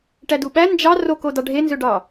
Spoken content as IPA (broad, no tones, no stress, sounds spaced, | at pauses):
ʈ æ d u ɓ æ n d͡ʒ ɑ r o k o d ɑ ɖʱ e n z ø ɖ ɑ